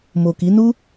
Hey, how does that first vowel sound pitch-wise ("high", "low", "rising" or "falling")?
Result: low